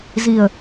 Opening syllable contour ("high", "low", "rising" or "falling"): low